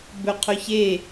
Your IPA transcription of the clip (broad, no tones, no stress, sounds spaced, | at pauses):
b ɵ qʰ ɵ ç e